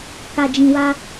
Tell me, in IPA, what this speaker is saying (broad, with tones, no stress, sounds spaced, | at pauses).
k a˧ d͡ʒ ĩ˧ w a˦